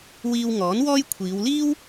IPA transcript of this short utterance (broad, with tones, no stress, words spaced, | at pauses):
wiː˧wŋɔː˨˥n wɔː˥j kʷʰiː˨˧wliː˥w